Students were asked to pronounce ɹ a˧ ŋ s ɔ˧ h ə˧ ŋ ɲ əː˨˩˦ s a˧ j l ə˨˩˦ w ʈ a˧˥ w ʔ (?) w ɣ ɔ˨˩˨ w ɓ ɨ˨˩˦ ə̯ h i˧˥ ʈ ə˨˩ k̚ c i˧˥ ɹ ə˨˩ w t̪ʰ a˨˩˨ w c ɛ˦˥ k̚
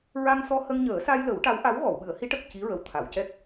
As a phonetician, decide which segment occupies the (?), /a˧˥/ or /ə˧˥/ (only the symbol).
a˧˥